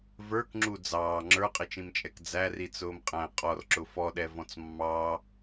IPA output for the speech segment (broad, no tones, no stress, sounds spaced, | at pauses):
v ə˞ k ŋ͡ǁ u d͡z ɑː ŋ͡ǁ ə˞ qʼ ɪ t͡ʃ ĩ m t͡ʃʼ ɛ k d͡z æ r i t͡s ʊː m qʼ æ̃ qʼ ɔ r ǁ ʊ f ɔ ɗ ɛ v ɔ̃ t͡s mː ɑ